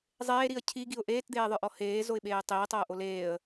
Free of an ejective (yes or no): yes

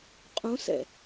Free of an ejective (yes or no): no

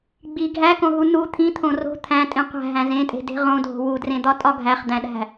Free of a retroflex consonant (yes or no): yes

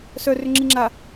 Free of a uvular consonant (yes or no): yes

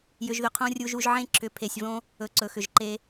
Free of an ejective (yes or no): yes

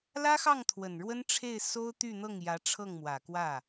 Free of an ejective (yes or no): yes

